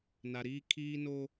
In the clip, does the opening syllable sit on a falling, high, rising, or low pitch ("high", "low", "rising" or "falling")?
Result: low